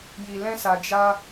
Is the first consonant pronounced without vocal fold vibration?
no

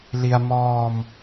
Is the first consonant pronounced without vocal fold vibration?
no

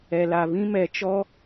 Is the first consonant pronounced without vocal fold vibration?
no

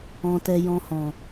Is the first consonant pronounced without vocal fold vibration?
yes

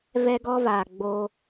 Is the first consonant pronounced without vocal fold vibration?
no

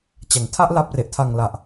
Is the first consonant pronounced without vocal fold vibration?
yes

